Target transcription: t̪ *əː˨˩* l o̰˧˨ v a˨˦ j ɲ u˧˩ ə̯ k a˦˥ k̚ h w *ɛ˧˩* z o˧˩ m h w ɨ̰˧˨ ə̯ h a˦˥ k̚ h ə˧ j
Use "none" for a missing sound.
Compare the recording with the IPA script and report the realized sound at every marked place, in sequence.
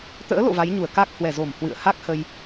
ə̰ː˧˥, ɛ˧˩

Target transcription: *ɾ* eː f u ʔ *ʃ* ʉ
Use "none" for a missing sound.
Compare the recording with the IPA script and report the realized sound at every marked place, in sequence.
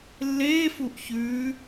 lː, ç

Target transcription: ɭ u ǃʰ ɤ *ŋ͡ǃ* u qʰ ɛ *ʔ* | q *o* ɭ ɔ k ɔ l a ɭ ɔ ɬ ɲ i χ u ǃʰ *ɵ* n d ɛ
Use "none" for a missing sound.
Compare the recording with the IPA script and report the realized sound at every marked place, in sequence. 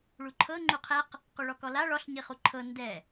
ŋ͡ǃ, q, o, ɤ

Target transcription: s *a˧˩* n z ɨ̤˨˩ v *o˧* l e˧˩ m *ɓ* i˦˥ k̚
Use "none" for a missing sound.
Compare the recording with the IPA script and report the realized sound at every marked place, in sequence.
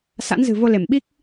a̰˧˥, o˧, ɓ

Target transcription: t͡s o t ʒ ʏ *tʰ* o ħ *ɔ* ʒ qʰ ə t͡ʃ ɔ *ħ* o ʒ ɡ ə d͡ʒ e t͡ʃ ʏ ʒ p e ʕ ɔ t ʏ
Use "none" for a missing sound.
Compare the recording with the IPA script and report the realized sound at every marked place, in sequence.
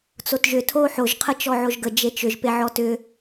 tʰ, o, ʕ

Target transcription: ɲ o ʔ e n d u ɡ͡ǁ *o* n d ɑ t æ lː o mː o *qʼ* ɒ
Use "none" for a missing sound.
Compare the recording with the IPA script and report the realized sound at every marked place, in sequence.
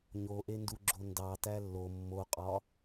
o, qʼ

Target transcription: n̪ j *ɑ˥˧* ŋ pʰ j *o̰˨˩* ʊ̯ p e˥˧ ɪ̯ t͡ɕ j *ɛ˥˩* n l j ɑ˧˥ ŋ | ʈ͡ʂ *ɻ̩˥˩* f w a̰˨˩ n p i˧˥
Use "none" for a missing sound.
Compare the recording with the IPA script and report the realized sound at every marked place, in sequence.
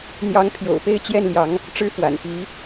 ɑ˧˥, o̰˨˩, ɛ˥˩, ɻ̩˥˩

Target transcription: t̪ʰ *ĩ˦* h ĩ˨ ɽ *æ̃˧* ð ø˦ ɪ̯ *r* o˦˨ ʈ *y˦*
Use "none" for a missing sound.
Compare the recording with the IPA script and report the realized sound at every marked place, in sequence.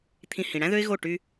ĩ˧, æ̃˦, ɣ, y˦

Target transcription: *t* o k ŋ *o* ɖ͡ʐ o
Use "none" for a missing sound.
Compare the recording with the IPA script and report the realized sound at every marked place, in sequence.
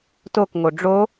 t, o

